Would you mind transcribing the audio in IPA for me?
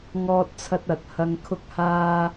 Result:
ŋɔː˧t̚t͡sʰɐ˧t̚ ɐ˨˥t̚ hɐ˧ŋkʰʊ˥k̚haː˥

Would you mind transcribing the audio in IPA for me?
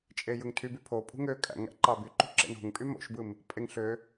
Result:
t͡ʃʼejɯŋtʰyby pʰopʼṳ ŋø kʼæ̰ŋæ̰ ǃɑbyǃṳ ǁḛno̤ŋpʼy mo̰ʃbɯm | pʼeŋ ɬø

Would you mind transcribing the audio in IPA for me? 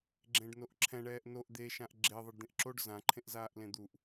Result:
ɡ͡ǁẽɖnoʔǁʰɛ̃ ɳɛːʔnoʔ d̪eʃãʔ ɡ͡ǁe ðˤɨɖd̪ẽʔǁoɖ zãǃʰẽʔzaːʔ lẽd̪uʔ

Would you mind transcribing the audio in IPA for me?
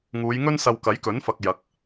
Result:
ŋuː˨˧jŋɵ˥nsɐ˧w kɐ˨˥jkɵ˨˥nfɐ˨k̚ jɐ˨˥k̚

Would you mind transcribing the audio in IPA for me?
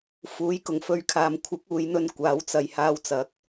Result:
fuː˨˥jkʊ˨˩ŋfɵ˧ɥkʰaː˨m kʷʰɪ˨˥k̚uː˨˧jn̪ɵ˧n kʷaː˨˧wt͡sɐ˨j haː˧wt͡sɐ˨˥k̚

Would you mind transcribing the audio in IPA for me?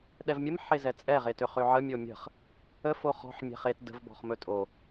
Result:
ɗɛvmʲəm ħezɛt͡sʼɛ ʁetøχøʕə mʲomʲə̤χ | ə foχɔ̤ħ mʲɛ̤χet də̤v bɔ̤χmɵtʼo

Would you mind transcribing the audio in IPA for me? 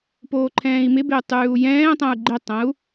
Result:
poːǃʰɛ̃ːi̯mɪbɪu̯ tˤʉːu̯jɛ̃ːtˤɛ̃u̯ ɡ͡ǃɪtˤə̃u̯

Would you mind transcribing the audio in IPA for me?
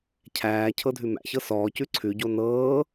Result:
cʰæː cʰɤdʱʉmæ̰çɤ sɔːcʉ ǀʰʉɟo nɤː

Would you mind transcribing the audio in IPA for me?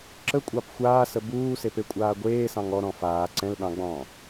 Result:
ǁəkʷʼɑp xʷaːsə buːsepekʷʼaː ɡʷeːsɑ̃ŋ ɔɾɔ̃ faː ǀɛ̃lɗɑ̃ɡ͡bɔ̃ː

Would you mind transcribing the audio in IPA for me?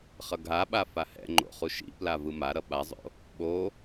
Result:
χʌɡʱaɓa fahɛ̰ŋ͡ǃo̰ χuʃḭpla vɯmaɾʌ ɓazˤo̰ | ɓo

